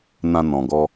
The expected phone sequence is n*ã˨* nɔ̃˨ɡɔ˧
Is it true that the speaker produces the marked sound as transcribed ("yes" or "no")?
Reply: yes